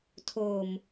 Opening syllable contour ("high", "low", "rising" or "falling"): low